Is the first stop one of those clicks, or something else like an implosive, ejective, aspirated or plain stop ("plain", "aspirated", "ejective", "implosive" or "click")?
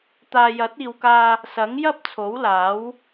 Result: plain